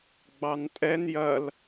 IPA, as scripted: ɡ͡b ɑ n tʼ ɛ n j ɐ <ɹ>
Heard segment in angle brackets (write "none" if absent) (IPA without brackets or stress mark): l